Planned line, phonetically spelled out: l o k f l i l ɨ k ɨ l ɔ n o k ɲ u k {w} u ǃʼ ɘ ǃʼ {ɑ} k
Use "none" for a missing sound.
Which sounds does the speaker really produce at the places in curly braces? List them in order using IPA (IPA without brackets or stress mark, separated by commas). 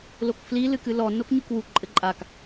w, a